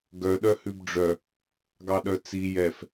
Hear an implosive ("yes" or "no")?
yes